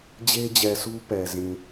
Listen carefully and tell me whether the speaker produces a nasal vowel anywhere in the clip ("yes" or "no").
yes